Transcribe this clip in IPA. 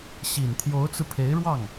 ɕ i˨˩ n t̪ʰ j o˧˥ ʊ̯ t͡s ɹ̩˧ pʰ e˧˥ ɪ̯ ɻ w ɑ˥˩ ŋ

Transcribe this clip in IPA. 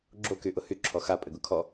ɡ͡ǁ o k y ʔ ʊ h y ǁʰ ɔ x a pʼ ɘ ɡ ʊ kʰ ɔ

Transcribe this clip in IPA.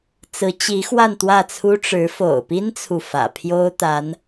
t͡s ɹ̩˧˥ t͡ɕ i˧˥ x w a˥˧ n t̪ w ä˥˩ t͡sʰ u˥ ʈ͡ʂ ɻ̩˧˥ f o̰˨˩ ʊ̯ p i˥ n t͡sʰ u˨ f ä̰˨˩ pʰ j o˥ ʊ̯ t̪ a˧˥ n

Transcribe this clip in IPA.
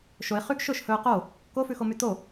ʃ o ɪ̯ χ y ɡ ʃ ɵ ʃ h ɵ ʊ̯ q o | k o f ʉ x o m y t o

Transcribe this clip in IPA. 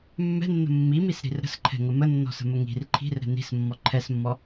mː ɛ̤ nː ə̤ mː i m i s ɾ i̤ r ɾ ə̤ s ǃʰ ɛ̤ ŋ ə m ə nː ɔ̤ s ə̤ m ə ŋ i̤ r ǃʰ i̤ r ɾ ɛ̤ n i̤ s mː ɔ ǃʰ ɛ s mː ɔ

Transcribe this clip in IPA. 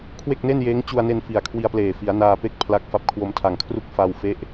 kʰ w e˥˩ k̚ n e˥˩ n j eː˦˥ ŋ t͡ɕ u˧ a̯ n e˧ n f i˨˩ a̯ kʰ w i˧ a̯ p l eː˨˩ f i˩˦ a̯ n aː˧ p e˥˩ k̚ pʰ l a˦˥ k̚ f a˦˥ p̚ kʰ w o˧ m tʰ a˨˩ ŋ kʰ r u˥˩ k̚ f a˧ w f e˦˥ ʔ

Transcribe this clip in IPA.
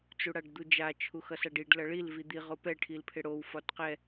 t͡s u ɽ a ɖ d̪ u d͡ʒ a t͡ʃʰ u x ʌ s a ɖ i ɖ l ʌ ɭ i l v i d̪ i ʁ o p ɛ ʈʰ i l pʰ ɪ ɽ o w f ɒ t q ɛ

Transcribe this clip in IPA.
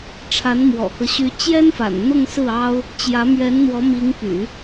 ʈ͡ʂʰ a˧˥ n m w ɔ̰˨˩ k ɤ˦ ɕ y˧˥ t͡ɕ j ɛ˥ n f a̰˨˩ n n̪ ʊ˥˧ ŋ s ɹ̩˥˩ ɑ˥ ʊ̯ | t͡ɕ j ä˧˥ m ɥ ɛ˧˥ n n̪ w ɔ˧˥ m i˧˥ ŋ p y̰˨˩˦

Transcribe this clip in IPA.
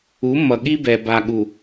u˨˦ mː ʌ˨ ɠ i˦ b ɛ˨ b a˨ ɠ u˨

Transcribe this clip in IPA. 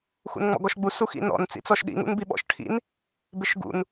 x ṵ n ŋ͡m ɔ̰ ɡ ɔ ʃ ɡ͡b u s u x ḭ n ɔ̰ n t͡s ḭ t͡s ɔ ʃ ɗ ḭ ŋ ṵ n b i ɓ ɔ̰ ʃ ʈʰ ḭ n | b ɪ ʃ ɡ ṵ n

